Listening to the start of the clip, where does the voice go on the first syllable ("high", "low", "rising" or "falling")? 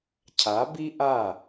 rising